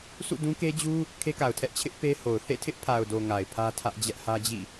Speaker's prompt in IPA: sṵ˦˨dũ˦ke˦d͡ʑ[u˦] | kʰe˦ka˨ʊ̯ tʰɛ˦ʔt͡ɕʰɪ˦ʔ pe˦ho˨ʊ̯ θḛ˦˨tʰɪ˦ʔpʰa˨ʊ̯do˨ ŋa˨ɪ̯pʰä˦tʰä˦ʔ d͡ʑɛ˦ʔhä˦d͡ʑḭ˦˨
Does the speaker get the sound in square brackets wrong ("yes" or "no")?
no